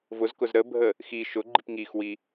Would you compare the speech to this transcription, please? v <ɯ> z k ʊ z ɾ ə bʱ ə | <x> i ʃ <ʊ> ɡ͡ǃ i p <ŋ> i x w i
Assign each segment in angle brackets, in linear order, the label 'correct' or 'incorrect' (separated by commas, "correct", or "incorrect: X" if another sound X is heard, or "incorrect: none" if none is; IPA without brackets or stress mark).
incorrect: ʊ, correct, correct, correct